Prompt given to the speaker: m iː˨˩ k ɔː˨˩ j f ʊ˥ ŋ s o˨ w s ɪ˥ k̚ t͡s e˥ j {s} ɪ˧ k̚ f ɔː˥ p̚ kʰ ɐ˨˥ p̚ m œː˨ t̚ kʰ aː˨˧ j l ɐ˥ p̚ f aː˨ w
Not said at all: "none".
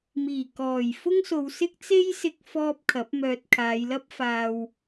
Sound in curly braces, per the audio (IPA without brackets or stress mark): s